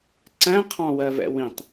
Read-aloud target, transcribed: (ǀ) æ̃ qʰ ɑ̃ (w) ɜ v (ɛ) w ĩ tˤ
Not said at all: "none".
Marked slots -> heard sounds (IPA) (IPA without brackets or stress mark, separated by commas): ǀ, w, ɛ̰